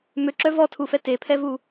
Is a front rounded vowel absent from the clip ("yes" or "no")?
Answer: no